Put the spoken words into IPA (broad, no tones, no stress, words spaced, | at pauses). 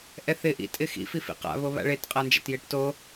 ʔɛθɪ ʔḭ tʼɪxḭ fifḭqa̰ βoβa̰ɭet qʼand͡ʒa̰tjeʈto